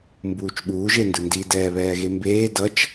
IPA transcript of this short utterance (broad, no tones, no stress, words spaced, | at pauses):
mbuːt͡ʃɓuː ʒendɯndi dɛːβɛːɣembeː dʌt͡ʃ